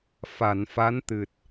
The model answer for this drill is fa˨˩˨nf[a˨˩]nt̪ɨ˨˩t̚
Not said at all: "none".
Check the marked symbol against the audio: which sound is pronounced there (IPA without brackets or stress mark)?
a˧˥